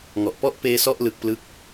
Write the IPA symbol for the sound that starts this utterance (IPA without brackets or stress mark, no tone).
ŋ